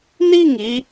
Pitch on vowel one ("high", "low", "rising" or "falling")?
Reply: falling